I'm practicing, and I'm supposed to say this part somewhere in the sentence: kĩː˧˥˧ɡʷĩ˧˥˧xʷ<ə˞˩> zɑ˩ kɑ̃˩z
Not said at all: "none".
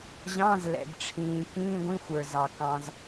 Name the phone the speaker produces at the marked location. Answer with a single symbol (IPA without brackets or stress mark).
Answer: ə˞˩